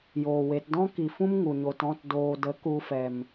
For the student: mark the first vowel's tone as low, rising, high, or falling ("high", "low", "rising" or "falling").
low